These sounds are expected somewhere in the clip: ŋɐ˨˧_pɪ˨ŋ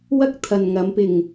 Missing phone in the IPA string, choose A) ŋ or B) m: B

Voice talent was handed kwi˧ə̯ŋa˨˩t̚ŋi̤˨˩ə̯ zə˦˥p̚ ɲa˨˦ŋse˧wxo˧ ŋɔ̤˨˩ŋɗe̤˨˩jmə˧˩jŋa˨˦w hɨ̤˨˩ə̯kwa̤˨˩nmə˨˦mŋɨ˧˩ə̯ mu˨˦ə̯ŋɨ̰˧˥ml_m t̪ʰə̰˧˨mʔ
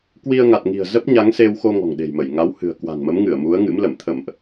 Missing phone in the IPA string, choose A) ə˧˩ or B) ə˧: A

